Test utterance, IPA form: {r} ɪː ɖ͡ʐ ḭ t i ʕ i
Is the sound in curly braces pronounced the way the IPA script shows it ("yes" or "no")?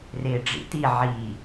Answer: yes